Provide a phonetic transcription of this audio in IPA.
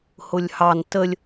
h ʊ lʲ h ɑ n t ə lʲ

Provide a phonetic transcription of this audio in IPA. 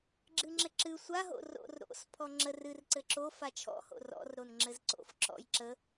ɡ͡ǁ ɨ ŋ͡ǁ ɘ ǁ ɨ sʷ a ɦ o̰ r o̰ r ɾ o̰ s pʰ ɔ ŋ͡ǁ ə r ɨ r ǀ ɘ ǁ o f a t͡ʃʰ ɔ̰ h o̰ r ɔ̰ r ɾ o n ŋ͡ǁ ɘ z ǀ o̰ f ǁ ɔ̰ j ǁ ə

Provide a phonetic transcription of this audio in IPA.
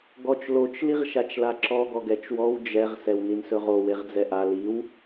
ɡ ɔ t͡ʃ l o t͡ʃ l i ʁ ʃ a t͡ʃ l a ǁ ɔ ɡ ɔ ɡ ɛ t͡ʃ w ɔ w d͡ʒ ɛ ʁ s ɛ w n i n s ɵ ʁ o w e ʁ d͡z ɛ ʔ a l i w

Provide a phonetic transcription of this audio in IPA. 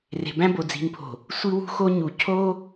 r e̤˨ b æ̃˦ b o˨ d͡z i̤˨ n pʰ o̤˨ | sʷ i˦ w ṳ˦ x o˦ ɲ u˨ cʰ o˦

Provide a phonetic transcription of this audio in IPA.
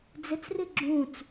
d͡z ɪ t͡s r i ɡ͡ǁ ũ t͡s

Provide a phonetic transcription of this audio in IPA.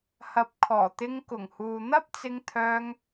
h ɐ˨˥ p̚ kʰ ɔː˨˩ t̪ ɪ˧ ŋ k ʊ˨˩ ŋ h uː˨ n̪ ɐ˥ p̚ t͡s ɪ˧ ŋ t̪ʰ œː˧ ŋ

